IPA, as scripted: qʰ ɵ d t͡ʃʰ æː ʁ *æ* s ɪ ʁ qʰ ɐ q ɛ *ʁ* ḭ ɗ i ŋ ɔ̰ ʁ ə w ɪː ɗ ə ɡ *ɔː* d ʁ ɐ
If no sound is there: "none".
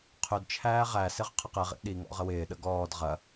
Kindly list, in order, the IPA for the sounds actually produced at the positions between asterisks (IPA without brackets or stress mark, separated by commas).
æ, ʁ, ɔː